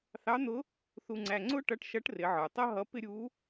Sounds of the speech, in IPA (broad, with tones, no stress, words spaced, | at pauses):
θɑ˧˥n̪ʊ˧˥ | θu˧ŋ͡ǀæ˧ ŋ͡ǀʊ˥ ʈʌ˧˥ʈʃʌ˧˥ʈ rɪ˩˧ʕə˞˩tˤʌ˥ ɦʌ˧˥pɪ˥ ɾʲu˧˥